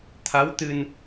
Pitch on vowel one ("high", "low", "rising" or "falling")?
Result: rising